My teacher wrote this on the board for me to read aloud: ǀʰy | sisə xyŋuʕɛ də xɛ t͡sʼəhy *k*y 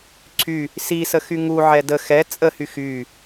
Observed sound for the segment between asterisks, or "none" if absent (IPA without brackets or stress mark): x